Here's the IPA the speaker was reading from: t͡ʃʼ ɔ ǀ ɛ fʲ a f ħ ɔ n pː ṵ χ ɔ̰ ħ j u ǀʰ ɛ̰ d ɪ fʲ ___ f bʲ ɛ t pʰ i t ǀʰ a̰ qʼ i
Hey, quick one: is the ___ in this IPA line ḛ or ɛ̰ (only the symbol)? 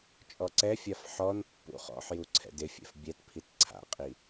ɛ̰